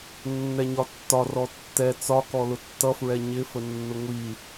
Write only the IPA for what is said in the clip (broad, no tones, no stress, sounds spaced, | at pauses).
nː ɛ ɲ ɒ tː ɒ r ɔ tː ɛ t͡s ɒ k ɔ l ʊ tː ʌ f ɹ ɛ ɲ ɪ f ə nː ʊ ŋʷ i